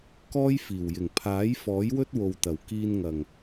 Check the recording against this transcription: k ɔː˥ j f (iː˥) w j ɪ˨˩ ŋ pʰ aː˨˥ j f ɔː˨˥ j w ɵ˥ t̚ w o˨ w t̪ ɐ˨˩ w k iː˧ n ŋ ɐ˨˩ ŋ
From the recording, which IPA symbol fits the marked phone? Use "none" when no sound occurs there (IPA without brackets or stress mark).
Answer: iː˨˩